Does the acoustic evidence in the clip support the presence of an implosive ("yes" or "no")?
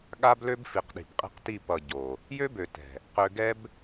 yes